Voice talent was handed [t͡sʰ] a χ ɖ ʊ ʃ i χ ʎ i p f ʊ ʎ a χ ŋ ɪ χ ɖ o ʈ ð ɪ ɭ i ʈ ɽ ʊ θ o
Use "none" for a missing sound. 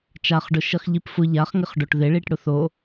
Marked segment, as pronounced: t͡ʃ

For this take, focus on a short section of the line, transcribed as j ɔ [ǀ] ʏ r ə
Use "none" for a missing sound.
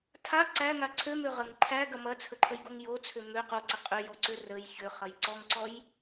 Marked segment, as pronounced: ǀ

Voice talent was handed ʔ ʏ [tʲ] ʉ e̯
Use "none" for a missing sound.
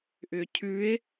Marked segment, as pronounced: cʰ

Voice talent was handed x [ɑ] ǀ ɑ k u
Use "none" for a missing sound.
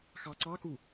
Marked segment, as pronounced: ɑ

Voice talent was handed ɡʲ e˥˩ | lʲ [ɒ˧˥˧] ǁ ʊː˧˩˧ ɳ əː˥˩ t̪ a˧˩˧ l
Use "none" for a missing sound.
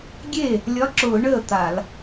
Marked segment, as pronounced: ɒ˧˥˧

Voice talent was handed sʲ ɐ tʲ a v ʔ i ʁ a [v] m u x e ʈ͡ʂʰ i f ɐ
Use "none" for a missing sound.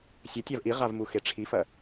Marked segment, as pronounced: v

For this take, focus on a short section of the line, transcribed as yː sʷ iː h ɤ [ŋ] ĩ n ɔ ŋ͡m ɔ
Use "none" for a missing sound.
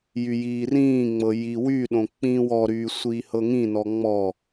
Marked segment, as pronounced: ŋ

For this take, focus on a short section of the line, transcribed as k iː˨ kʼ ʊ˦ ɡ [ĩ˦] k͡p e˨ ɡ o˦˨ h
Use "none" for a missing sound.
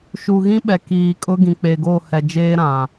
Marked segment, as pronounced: ĩ˨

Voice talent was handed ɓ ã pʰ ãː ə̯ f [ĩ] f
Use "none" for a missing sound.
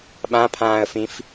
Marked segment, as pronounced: ĩ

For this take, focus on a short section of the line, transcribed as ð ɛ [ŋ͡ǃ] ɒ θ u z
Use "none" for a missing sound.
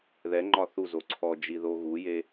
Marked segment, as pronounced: ŋ͡ǃ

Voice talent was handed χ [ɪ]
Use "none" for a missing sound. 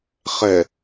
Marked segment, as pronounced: ɛ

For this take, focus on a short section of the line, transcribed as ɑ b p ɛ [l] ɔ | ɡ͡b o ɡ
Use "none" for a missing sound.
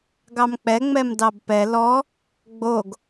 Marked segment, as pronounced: l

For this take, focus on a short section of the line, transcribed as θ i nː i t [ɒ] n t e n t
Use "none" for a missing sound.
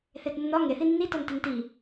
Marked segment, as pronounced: ɒ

